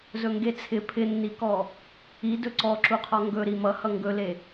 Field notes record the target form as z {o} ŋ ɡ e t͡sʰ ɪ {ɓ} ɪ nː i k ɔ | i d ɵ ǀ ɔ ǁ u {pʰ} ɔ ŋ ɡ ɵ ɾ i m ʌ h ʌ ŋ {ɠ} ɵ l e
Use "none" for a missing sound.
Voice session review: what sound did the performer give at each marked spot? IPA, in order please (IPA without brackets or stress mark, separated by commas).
ɵ, pʰ, qʰ, ɡ